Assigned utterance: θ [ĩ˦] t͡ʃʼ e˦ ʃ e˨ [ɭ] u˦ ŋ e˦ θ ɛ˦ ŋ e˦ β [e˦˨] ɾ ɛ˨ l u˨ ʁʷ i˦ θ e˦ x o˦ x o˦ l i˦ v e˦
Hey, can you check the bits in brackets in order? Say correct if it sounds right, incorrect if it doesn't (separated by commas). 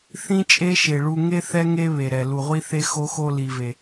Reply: correct, correct, incorrect